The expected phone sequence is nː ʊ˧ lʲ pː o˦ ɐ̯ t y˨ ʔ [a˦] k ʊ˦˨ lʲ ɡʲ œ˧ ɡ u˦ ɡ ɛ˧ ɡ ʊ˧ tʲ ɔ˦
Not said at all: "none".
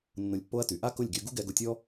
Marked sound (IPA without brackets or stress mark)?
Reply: a˦